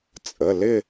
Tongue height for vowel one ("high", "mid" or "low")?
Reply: mid